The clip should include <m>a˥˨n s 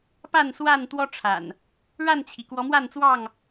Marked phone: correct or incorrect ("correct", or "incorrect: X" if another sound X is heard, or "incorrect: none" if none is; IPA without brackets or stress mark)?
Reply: incorrect: p